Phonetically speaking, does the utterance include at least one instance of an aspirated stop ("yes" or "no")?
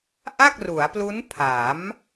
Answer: yes